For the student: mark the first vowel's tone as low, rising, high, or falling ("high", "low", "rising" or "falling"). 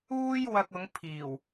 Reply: high